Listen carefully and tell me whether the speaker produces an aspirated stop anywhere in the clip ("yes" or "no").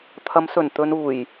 yes